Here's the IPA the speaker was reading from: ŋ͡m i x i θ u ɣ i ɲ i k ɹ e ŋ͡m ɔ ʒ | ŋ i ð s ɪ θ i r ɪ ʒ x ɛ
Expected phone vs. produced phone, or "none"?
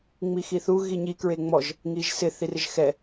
ð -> ʒ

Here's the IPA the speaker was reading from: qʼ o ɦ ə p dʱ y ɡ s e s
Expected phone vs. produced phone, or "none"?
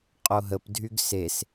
none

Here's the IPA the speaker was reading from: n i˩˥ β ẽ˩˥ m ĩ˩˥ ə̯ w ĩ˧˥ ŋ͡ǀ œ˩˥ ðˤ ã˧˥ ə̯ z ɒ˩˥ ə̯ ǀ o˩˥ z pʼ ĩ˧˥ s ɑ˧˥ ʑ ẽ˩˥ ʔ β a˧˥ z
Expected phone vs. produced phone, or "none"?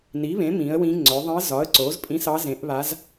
ʑ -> z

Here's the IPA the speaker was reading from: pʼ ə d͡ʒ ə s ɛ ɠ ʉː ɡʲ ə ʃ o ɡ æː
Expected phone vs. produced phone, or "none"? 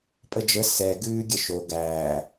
ɠ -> ɡ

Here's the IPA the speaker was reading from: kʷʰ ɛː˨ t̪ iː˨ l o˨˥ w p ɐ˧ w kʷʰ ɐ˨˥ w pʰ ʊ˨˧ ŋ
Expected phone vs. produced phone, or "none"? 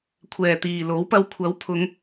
none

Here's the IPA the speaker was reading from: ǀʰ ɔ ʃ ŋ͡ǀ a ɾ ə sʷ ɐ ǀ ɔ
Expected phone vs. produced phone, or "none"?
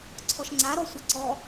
ə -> ɔ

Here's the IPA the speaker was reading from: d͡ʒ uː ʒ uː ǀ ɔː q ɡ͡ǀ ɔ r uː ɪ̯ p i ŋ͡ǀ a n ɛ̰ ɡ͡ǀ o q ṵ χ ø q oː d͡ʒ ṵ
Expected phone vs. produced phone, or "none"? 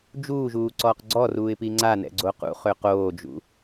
none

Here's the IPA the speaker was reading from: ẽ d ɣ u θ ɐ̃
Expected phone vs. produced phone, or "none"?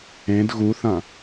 none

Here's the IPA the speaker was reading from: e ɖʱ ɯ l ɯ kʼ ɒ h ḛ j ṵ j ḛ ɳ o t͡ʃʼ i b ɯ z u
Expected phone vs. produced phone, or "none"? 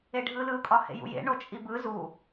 none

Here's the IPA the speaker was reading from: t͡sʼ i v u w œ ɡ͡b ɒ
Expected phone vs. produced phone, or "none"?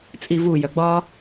w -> j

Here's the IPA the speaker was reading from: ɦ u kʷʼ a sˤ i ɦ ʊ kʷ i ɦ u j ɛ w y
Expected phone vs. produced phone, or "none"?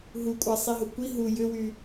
ɛ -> ʏ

